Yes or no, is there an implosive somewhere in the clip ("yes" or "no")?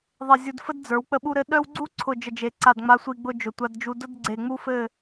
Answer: yes